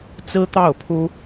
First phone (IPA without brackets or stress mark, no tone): t͡s